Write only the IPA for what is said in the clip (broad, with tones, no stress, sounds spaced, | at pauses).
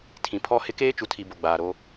tʰ ĩ˨ pʰ ɔ˦ h ɪ˦ k eː˦ t͡ʃ u˨ tʰ i˨ b o˨ ɡ͡b aː˨ ɾ o˦